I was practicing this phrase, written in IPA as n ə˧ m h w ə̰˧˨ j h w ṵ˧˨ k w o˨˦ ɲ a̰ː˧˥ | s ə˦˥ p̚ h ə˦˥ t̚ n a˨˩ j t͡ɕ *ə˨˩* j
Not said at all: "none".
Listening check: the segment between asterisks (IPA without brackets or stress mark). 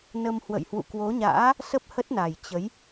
ə˨˦